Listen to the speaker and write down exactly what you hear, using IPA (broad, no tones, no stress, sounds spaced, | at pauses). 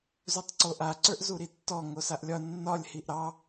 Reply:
z u tˤ ǀ o ʔ a ǀ ə˞ ʔ z u ɾ i tː ɔ ŋ o s a ʔ lʲ ɒ nː ɒ lʲ h i ʔ ɾ ɑ